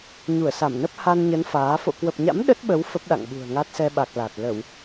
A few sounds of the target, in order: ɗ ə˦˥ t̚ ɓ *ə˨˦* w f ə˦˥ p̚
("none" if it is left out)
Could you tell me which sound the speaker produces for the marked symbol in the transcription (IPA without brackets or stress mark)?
ə˨˦